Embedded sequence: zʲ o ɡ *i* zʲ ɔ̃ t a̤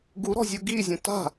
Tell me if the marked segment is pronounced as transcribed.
yes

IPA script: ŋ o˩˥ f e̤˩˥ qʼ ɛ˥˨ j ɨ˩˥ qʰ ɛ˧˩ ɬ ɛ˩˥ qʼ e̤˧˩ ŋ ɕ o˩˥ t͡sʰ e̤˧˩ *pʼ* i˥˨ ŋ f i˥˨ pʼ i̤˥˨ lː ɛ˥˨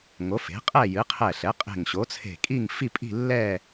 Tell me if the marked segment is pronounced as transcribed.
no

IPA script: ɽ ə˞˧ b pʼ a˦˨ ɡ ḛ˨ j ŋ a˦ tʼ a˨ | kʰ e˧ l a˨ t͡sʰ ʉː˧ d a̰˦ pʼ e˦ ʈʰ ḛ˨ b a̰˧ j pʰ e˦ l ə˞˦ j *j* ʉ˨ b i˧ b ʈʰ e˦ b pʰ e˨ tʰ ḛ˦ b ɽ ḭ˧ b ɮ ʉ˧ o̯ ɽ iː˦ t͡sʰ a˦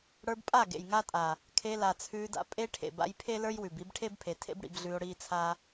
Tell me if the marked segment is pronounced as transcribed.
no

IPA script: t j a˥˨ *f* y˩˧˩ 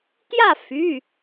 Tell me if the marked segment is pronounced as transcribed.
yes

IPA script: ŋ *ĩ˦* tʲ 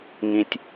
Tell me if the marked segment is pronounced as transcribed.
yes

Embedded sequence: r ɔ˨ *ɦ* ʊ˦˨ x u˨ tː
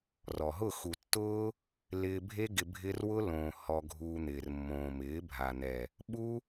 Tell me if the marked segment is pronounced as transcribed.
yes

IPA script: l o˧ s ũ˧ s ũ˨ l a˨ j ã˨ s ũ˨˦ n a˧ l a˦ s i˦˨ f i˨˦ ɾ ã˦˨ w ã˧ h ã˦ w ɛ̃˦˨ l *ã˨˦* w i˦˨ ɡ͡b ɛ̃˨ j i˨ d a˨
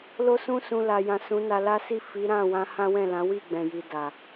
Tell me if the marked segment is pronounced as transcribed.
yes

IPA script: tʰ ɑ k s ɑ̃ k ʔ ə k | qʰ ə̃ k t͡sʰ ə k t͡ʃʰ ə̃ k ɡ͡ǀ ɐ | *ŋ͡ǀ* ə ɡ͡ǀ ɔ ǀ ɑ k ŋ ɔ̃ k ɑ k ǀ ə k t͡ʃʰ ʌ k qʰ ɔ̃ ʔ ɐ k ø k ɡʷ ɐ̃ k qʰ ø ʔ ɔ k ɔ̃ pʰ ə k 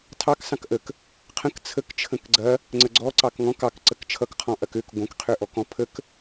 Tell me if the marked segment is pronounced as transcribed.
yes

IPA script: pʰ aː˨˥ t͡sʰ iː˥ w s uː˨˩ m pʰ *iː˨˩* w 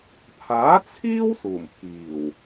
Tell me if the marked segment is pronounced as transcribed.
yes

